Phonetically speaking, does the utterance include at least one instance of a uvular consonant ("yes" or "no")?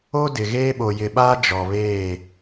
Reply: no